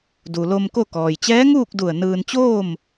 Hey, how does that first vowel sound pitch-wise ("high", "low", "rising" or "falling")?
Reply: low